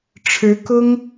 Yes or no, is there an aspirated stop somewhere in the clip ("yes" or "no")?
yes